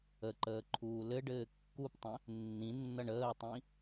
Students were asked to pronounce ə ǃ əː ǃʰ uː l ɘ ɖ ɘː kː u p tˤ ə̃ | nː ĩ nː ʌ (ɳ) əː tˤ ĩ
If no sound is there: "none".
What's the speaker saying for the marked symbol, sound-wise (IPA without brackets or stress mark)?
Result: ɳ